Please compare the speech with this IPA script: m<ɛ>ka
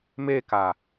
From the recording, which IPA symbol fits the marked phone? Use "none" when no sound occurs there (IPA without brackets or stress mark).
e